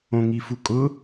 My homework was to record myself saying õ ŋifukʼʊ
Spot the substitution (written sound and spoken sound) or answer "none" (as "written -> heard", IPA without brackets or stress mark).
none